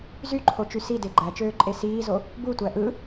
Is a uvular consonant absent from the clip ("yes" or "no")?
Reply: yes